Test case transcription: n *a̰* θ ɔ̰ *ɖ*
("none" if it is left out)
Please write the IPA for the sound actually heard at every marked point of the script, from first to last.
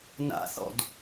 a̰, d

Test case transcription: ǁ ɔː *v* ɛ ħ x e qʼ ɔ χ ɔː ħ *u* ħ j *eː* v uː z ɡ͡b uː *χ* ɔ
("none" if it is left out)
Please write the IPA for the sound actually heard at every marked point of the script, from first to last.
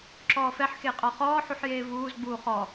f, u, eː, χ

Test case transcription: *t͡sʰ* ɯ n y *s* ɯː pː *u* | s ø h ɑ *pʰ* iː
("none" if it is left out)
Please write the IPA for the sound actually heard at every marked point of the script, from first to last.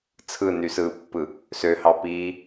t͡sʰ, s, ɯ, p

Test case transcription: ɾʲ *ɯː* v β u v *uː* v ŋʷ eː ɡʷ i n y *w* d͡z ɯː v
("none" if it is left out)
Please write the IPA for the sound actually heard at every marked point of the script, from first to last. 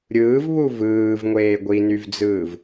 ɯː, ɯː, v

